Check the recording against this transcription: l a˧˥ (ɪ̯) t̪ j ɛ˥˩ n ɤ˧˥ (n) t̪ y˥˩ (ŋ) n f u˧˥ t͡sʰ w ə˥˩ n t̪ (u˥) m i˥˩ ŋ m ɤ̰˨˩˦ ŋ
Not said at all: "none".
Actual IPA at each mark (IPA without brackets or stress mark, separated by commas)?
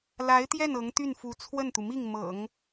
ɪ̯, ŋ, none, u˩